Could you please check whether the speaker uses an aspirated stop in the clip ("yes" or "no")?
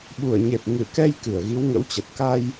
no